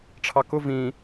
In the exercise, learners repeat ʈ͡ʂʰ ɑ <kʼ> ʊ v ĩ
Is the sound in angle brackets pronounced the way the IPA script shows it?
no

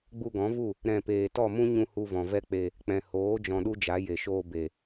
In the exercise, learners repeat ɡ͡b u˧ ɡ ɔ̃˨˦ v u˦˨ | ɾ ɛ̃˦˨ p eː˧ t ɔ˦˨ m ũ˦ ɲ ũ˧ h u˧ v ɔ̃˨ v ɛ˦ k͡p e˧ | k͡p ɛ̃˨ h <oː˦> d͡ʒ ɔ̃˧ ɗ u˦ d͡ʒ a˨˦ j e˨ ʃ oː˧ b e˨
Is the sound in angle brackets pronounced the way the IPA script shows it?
no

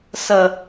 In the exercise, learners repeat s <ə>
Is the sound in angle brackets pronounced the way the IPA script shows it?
yes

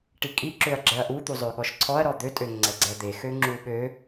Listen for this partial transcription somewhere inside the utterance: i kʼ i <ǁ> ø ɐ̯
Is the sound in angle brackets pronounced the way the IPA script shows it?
yes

